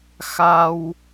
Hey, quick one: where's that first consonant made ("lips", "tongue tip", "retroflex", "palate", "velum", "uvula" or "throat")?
velum